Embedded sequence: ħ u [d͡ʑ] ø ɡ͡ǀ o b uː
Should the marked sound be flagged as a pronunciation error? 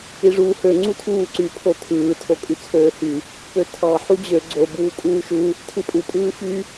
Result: no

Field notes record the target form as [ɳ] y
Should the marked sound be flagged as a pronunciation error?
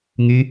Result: yes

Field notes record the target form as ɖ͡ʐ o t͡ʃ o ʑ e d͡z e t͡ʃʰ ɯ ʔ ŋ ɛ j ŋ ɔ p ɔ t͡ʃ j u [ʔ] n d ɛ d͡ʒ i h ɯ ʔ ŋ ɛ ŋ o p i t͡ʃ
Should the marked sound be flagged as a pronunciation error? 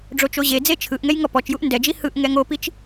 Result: no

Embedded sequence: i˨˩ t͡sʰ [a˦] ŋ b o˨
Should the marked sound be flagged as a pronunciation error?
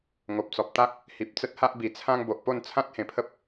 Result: yes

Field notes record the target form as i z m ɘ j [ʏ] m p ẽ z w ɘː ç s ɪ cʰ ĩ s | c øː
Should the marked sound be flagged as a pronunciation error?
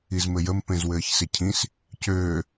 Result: yes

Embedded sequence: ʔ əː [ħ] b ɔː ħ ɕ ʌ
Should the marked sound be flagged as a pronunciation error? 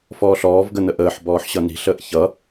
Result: no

